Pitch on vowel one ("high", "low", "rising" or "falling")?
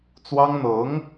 high